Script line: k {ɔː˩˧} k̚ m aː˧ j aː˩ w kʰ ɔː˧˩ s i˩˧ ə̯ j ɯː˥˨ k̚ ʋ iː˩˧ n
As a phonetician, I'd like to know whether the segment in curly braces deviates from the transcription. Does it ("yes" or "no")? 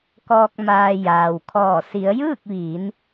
yes